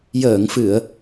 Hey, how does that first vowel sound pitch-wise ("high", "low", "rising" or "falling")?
low